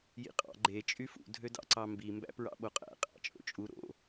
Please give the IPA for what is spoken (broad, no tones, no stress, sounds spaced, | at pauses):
j ḭ qʼ ɑ̰ ɡ͡ǃ e t͡ʃʼ y f ṵ dʱ ø d ɑ̰ ǀ ɑ m b i m b æ̰ p ɹ ɑ̰ ɓ o qʼ æ̰ qʼ æ̰ t͡ʃʼ o̰ t͡ʃʼ u ɾ o̰